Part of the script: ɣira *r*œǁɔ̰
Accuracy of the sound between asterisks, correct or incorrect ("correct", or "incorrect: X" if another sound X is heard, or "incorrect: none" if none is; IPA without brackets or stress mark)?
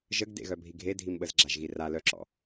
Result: incorrect: l